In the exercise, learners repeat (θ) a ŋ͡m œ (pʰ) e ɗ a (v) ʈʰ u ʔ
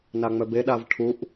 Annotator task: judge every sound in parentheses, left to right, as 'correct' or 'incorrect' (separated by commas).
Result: incorrect, incorrect, correct